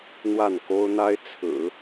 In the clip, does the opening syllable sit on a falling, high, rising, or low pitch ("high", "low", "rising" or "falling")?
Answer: falling